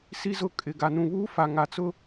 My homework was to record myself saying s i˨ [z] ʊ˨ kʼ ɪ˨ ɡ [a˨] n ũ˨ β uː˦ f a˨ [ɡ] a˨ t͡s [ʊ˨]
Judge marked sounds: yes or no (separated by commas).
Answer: yes, yes, no, no